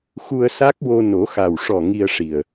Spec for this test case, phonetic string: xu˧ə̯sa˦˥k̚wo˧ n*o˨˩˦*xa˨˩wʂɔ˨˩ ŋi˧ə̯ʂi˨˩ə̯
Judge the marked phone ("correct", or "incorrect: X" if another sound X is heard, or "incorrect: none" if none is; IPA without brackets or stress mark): correct